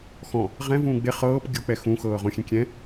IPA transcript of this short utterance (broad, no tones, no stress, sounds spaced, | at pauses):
x ɔ̃ | ʁ ɛ̃ v ũː ɡ͡b e χ ɤː p ɡʲ o k͡p ɛ x ũ x ɤː ʁ õ xʲ ẽ kʲ ɛ̃